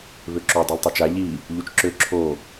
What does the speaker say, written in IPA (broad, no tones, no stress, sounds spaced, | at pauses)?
β ø ǁ o dˤ œ l tˤ o t͡ʃ a ʎ i | ʎ u t͡ʃ ǁ ø ǁʰ o